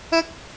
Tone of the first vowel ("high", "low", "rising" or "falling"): high